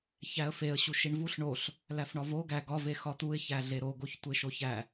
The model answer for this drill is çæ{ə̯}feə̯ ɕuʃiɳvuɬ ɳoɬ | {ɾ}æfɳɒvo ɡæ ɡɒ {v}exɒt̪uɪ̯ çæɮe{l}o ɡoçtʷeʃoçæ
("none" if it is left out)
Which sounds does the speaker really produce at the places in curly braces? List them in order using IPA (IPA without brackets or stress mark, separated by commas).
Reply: ə̯, l, v, ɾ